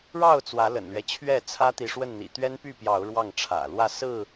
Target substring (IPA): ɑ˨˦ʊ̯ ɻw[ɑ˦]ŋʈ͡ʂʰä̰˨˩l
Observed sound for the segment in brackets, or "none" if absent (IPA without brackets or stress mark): ɑ˥˨